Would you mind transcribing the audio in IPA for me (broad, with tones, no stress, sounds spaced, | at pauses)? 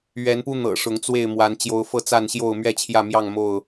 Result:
ɥ ɛ˨˦ n p u˦ n̪ ɤ̰˨˩ ʂ ʊ˨˦ ŋ t͡s w e˥˨ ɪ̯ m w a˨˦ n t͡ɕ j o˨˦ ʊ̯ f ɤ˥˨ t͡s a˥˨ n ɕ j o˥˨ ʊ̯ m ɥ ɛ˥˨ t͡ɕʰ j ä˥˨ m j ɑ˥˨ ŋ m o˥˨ ʊ̯